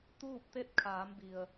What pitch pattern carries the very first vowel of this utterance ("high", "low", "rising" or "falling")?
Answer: falling